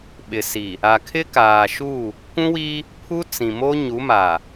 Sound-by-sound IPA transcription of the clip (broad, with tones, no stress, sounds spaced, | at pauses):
ɓ ɪ˨ s i˨ | a˨ kʰ ɪ˦ k aː˨ ʃ u˦˨ | kʷ ũ˦ w i˦ | pʰ u˦ t͡s ĩ˨ m o˦ ɲ u˨˦ m a˨